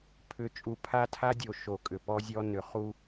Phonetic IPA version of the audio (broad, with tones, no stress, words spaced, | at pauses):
pʰʏ˨˦t͡ʃʼu˨ pʰa˦tʰa˦dʲo˨ ʃo˨ kʼʏ˨pɔ˦zʲɔ˦ nʏ˨ χu˦